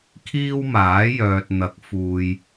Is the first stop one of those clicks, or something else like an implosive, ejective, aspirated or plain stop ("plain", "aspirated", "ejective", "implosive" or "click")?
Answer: aspirated